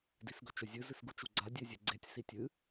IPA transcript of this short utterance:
d i s ɡ ɵ t͡ʃ ɵ zʲ ɨ z ɨ s ɡ u t͡ʃ u ɡ͡ǀ a dʲ e zʲ e ɡ͡ǀ e tʲ s i tʲ ɨ

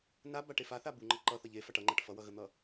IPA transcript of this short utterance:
n a b a ʈ e f a θ a b u ŋ͡ǃ ʌ ǃ ʌ θ ʌ ʎ e f a ʈ ʌ ŋ͡ǃ a ʈ f ʌ w ʌ ɣ ə n̪ ʌ

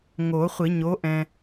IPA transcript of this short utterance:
ŋ o˨˩˦ χʷ i˨˩˦ ɲ o˨˥ ʔ ɛ̃˨

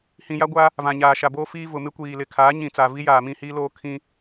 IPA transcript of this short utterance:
h ĩ˨ j a˦ ɡʷ a˦ | v ã˨ ɲ aː˨ ʃ a˨ b oː˦ f iː˦ v ʊ˨ m ɪ˦ kʷ iː˨ l ɪ˨ kʰ aː˨˦ ɲ ĩ˨ t͡s a˨ v i˦ j aː˨ m ĩ˦˨ h iː˦ l oː˦ kʰ ĩ˦

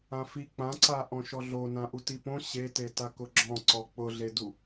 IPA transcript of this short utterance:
ã f i k͡p ã ǀ a ʔ ɔ̃ ʃ ɔ ɮ o n ã ʔ u t i p õ ɕ e t e t a k ʊ ɡ͡ǁ ɔ̃ ǀ ɔ k͡p ʊ ɮ e d u

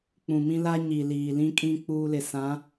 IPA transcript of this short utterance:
k͡p ũ˨ m ĩ˦ l a˦ ɲ i˨ l iː˨ l ĩ˦ kʼ ĩ˦ k͡p uː˦ l ɪ˨ s ã˨˦

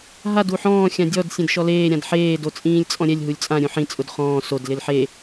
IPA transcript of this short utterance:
ɦ a d u ħ ɔ̃ː xʲ ã dʲ ɔ d sʲ ẽ d ʃ ɔ l eː ɾʲ ã d ħ eː d o t͡sʼ ĩː lʲ t͡sʼ ɔ̃ ɾʲ ɛ lʲ ɦ u lʲ t͡sʼ ã ɾʲ ũ ħ ĩ t͡sʼ ʊ d χ ɔ̃ː s o d l ɪ l ħ e

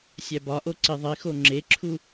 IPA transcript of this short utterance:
sʲ æ b ɒ ʔ o ǀ i ðˤ i x o ŋ͡ǁ e ǁʰ u

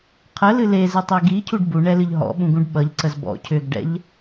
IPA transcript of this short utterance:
qʰ ə l ɨ l e z ɨ tˤ i ɡ i cʰ u ɖ b u ɳ ɛ l ɨ ʎ ɦ ɔ̰ ɓ ũ ɡ ũ ɖ ɓ ʌ ʎ ǀ ə z b ɔ̰ cʰ ʏ ɡ ɖ ɛ̰ ʎ

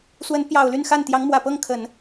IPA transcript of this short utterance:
s w ə˧˥ n p j ɑ˨˩ ʊ̯ l y˥˧ n x a˥˩ n t̪ j ɑ˧˥ ŋ m w ä˨˩ p ɤ˥˩ ŋ kʰ ə˨˩˦ n

